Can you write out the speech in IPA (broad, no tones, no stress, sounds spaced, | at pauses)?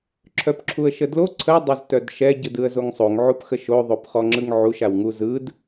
ǁʰ œ p ǁʰ u ə̯ ʃ ə d l o ǀʰ ə dˤ a z t œ d ʃ ɛ ɟ ɯ d ɯ ə̯ z o ŋ sˤ o ŋ ʕ u p x ə ʃ o ðˤ o p χ ɔ ŋ͡ǁ ɯ ŋ ʕ u ʃ a w ŋ u z ɯ d